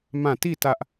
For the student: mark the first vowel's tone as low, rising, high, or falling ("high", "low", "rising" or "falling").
falling